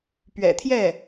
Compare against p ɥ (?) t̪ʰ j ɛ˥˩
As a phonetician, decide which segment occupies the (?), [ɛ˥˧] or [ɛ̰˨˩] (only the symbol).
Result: ɛ̰˨˩